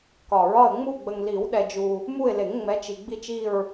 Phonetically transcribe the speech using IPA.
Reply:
k ɒ˨˩˦ ɹ ɒ˦˨ ə̯ ŋ͡m u˦˨ ɡ͡b ə˨ ŋ l i˨˩˦ w ɗ ɛ˨ d͡ʒ u˨ | m u˦˨ ɪ̯ l e˨˩˦ ŋ ŋ͡m ɛ˨˦ t͡ʃ i˨ ɡ͡b i˦˨ t͡ʃ i˦˨ ɹ

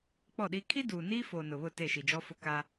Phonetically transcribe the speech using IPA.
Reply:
k͡p ɔ˦˨ ɗ i˦ kʰ i˦ d uː˨ n iː˦ f oː˨ n ʊ˨ β ʊ˦˨ t e˦˨ ʃ i˨ d͡ʒ ɔ˦ f ʊ˦ k a˦

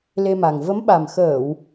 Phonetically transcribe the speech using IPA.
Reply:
l e˧ m a˨˩ ŋ v ə˨˦ m ɓ a˨˩ m x əː˧˩˨ w

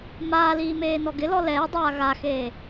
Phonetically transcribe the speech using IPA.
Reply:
m aː l iː m eː n ɔ ɡ ɪ l ɔ l ɛː dˤ aː ɣ a x eː

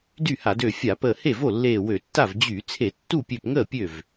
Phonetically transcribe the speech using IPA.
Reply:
d y˥˩ h a˧˩˧ d ø˧˩ fʲ a˧˩˧ p əː˧˩ h e˥˩ v o˥˩ lː eː˧˩ w ø˧˩˧ tː a˥˩ v d͡ʑ y˧˩˧ t͡sʰ e˧˩˧ tː u˥˩ pʲ ø˧˩ p ŋ əː˥˩ pʲ ø˥˩ v

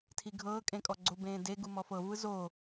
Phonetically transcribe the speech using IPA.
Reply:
tʰ i ɡʱ ɤː kʼ ẽ kʼ ɔ ɡ͡ǀ o b ẽː d e ɡ u m ɔ f ɤ v ɯ z oː

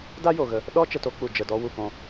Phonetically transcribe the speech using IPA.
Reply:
d a˧ j o˨ ɣ ə˧ | ɗ ɔ˧ t͡ʃ ə˧ t o˨˦ k͡p u˨ d͡ʒ ə˨ d ɔ˧ w u˨ k ɔ̃˧

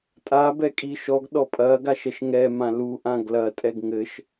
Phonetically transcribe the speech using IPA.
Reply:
tʼ a b ɛ kʼ i ʃ ɔ ɡ ɗ ɔ pʼ ɐ ɡ a ʃ ɛ ʃ ŋ ɛ m ã l u ʔ ã ɡ l ɐ tʼ ɛ ɡ ŋ ɘ ʃ

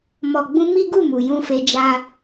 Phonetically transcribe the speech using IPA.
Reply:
m ɔ˨ ɡ͡b ũ˧ m i˦ ɡ u˦˨ m u˨ j ũ˧ f e˧ d͡ʒ a˧

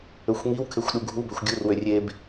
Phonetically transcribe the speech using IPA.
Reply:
ø xʷ ŋ i w kʰ e xʷ ɗ u ɡʱ u b ø xʷ ɡʲ u r w ø rʲ e b

